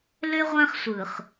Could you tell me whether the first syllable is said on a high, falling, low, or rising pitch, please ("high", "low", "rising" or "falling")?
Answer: high